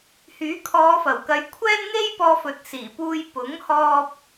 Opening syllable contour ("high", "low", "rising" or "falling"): rising